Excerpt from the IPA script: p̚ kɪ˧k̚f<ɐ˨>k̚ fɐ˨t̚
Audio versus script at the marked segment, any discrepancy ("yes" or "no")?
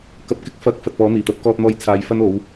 yes